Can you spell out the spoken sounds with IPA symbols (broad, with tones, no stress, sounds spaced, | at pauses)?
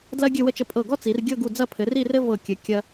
d l ɐ˥ ɡʲ ɘ˥˧ w ə˥˧ t͡ʃ ə˧ pʼ ɤ˧˩ ɡ ɔ˥ t͡s i˩˧ r ɡʲ ɤ˥˧ ɡ u˧˩ d͡z ɐ˥˧ pʰ ɘ˩˧ r i˥˧ r ɘ˥ v ɤ˧˩ kʲ ɘ˩˧ kʲ ɐ˧